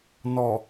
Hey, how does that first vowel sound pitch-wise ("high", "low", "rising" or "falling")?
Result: low